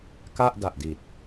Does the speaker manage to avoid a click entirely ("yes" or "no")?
yes